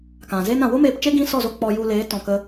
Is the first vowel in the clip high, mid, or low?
low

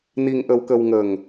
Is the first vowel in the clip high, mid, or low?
high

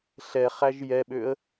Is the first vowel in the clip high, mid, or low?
mid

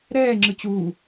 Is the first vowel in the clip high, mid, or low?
mid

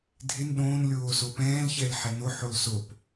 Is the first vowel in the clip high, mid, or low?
high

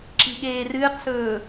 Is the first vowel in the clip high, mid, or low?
high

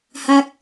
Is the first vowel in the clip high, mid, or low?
low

